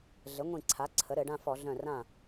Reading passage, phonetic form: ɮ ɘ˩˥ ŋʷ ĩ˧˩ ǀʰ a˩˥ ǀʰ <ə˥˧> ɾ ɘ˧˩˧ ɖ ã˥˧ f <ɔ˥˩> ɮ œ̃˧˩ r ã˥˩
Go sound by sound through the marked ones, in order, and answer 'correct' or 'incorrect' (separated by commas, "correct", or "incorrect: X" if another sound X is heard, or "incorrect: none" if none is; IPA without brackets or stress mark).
incorrect: ə˩˥, incorrect: ɔ˧˩˧